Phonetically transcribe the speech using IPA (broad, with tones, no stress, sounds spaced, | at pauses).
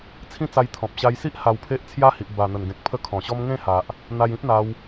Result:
t͡sʰ ĩ˦ t͡s a˧ j t̪ʰ ɔ̃˨ p̚ ɕ a˧ j s i˦ ʔ h a˧ w pʰ e˦ ʔ t͡sʰ j a˦ h i˨ ʔ b a˨˩ n̪ ə˨˩ n ɡ ẽ˨ k̚ pʰ ə˦ kʰ ɔ̃˨˩ ɕ ɔ˦ m ŋ ẽ˥˧ h a˨ ʔ | n̪ a˧ j ĩ˦ p̚ n̪ a˧ w